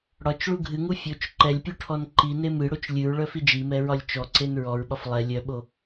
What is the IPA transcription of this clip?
ɽ ɒ t͡ʃ ɭ u ɡʱ ɨ ŋ u fʲ o t͡ʃ ǃ ɛ lʲ pʲ u ʈʰ ɔ n ǃ i n e m ɨ ɽ o t͡ʃ lʲ ɨ ɹ ɭ œ f i d͡ʒ i m ɛ ɹ ɒ lʲ t͡ʃ ɔ ǀ e n ɹ ɔ ɹ ɓ ɒ f lˠ ɛ lʲ œ ɓ o

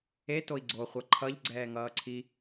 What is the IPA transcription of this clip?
e t o i̯ ɡ͡ǀ o χʷ ʌ ǃʰ ʌ ʎ ɡ͡ǀ ɛː ŋ ʌː ǀʰ i

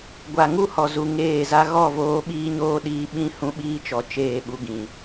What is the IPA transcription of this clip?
ɡʷ a˨ ŋ u˦ h ɔ˨ z u˨ ŋ eː˦˨ z a˦ ɣ ɔ˦˨ v oː˧ ɓ iː˦ ɲ oː˦ ɗ iː˧ ɓ ĩ˦ h ũ˦ ɓ iː˦ t͡ʃ ɔ˨˦ t͡ʃ eː˦˨ ɓ u˧ ɡ ĩ˨

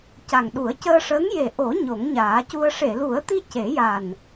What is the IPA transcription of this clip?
c a˨˩ ŋ ɗ u˨˩˦ ə̯ c əː˧ ʂ əː˧˥ ŋ j e˨˩ ʔ o˨˩˦ ɲ o˨˩˦ ŋ ɲ aː˨˩˦ c u˧ ə̯ ʂ e˨˩˨ l u˨˩˦ ə̯ t̪ i˧ c e˨˩˦ j a˨˩ n

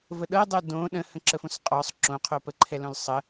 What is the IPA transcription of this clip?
v ə ɗ ɤ dˤ o d õ ɗ ə̃ h ə̃ ǁ ə f õ s qʼ ɔ sˤ ǁ õ qʰ o p ə ǃʰ ɛ l õ l sˤ ə

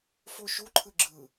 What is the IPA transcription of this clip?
f o ʃ u ǃʰ ɯ ɡ͡ǁ ɯ

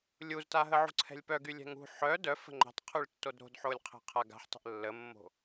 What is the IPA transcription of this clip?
lʲ u z t a ɦ ə ʕ ṳ ǀʰ ɛ̤ lʲ p œ ɡ y lʲ ɛ̤ ŋ ṳ ħ œ d œ f ə̤ ŋ͡ǃ ɛ̤ tˤ qʰ y ɭ tː o d ɾ o̤ d ħ o lʲ qʰ ɛ̤ qʰ a ɡ a̤ ħ tˤ ə̤ ʔ lː ə mː o̤

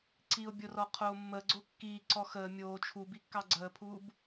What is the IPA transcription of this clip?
ǀ iː ʊ̯ bʲ o r ɔ qʰ oː mː əː ɡ͡ǀ o kː iː ǀ ɔ x əː mʲ oː t͡ʃʰ u b i kː ɑ ɡ͡ǀ əː pʰ uː b

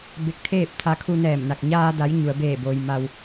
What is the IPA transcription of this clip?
b e˧˥ k̚ t̪ʰ eː˥˨ p̚ t̪ʰ a˧ kʰ u˧ n ɛː˧˩ m n a˧˩ k̚ ɲ aː˧ d a˩˧ j ɲ u˩ ə̯ b eː˧˩ b oː˩ j m a˩ w

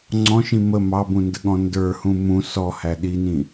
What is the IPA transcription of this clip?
ŋ͡ǀ ɔ̃ ʃ ĩ m ə m ɑ b ũ n d ə ɠ ɔ̃ n d ə˞ h ũ m ũ s ɔ h æ ɗ i n ĩ

